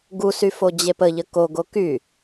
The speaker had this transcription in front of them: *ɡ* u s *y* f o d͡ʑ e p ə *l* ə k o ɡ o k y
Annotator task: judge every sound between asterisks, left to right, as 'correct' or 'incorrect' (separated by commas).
correct, correct, incorrect